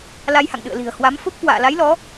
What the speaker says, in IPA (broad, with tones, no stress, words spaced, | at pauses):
la˧jha̰˧˨ŋɗɨ̰˧˨ə̯li̤˨˩ə̯ hwa˨˦mfo˦˥p̚kwa̰ː˧˨ la˨˦jlɔ˨˦